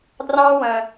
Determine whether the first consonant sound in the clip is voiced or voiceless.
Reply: voiced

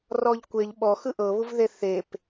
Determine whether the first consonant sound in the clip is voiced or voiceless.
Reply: voiced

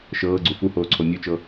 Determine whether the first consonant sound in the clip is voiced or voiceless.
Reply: voiceless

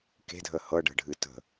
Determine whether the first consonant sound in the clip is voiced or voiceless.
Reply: voiceless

